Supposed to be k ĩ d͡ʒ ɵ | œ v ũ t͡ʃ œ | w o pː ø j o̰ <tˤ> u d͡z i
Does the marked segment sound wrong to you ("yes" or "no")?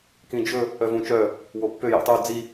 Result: no